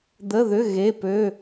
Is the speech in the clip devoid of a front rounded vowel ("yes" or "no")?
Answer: no